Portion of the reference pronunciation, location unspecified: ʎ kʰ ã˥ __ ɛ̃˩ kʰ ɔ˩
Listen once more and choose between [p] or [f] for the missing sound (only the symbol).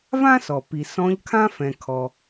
f